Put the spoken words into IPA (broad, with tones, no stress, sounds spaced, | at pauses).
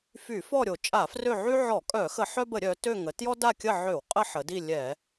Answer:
f y˧˩˧ f ɔ˦˨ ɾʲ o˧˩˧ t͡ʃʼ a˧˩˧ f r ø˦˨ ʕ y˦ ʕ ɔ˧˩˧ kʼ œ˧˩˧ x ə˧˩˧ ħ œ˦ b ə˧˩˧ ɾʲ œ˩˧ t ø˦˨ ŋ ə˩˧ t j ɔ˦ d a˦˨ kʲ ə˦˨ ʕ ø˧˩˧ w qʼ ə˦ ħ ə˩˧ d i˦˨ lʲ ɛ˧˩˧